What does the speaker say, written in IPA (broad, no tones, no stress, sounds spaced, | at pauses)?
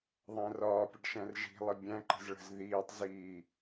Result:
ðˤ æ̃ r ɒː pʲ ə ɖ ʃ æ̃ r ʒ i̤ lˠ i bʲ æ̃ ǃ ə̤ z ɭ ə̤ z ð iː tˤ z iː